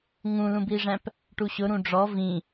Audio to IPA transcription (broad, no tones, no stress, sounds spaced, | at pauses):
ŋ ũ l ũ b i ʐ æ̃ p | ʈ u ɕ ʊ ɾ ũ ɖ͡ʐ ɔ v ĩ